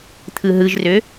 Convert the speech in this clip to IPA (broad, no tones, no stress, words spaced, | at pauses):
t̪ʰɯɦɯʒrø